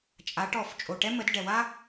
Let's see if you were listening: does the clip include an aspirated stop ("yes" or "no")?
no